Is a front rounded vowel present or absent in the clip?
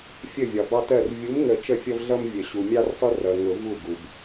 absent